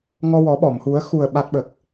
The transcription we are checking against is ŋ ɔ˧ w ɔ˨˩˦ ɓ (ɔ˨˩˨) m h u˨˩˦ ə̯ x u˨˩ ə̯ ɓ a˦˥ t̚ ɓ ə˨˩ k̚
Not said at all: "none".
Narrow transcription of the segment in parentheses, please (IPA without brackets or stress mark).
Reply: ɔ˨˩˨